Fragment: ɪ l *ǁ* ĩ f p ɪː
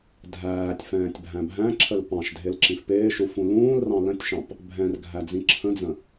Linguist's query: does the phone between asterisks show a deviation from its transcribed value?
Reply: no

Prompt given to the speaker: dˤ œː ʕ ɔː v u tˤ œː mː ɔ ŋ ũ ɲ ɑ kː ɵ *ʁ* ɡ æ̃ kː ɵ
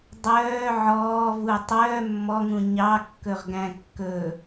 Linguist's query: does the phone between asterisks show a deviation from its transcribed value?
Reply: no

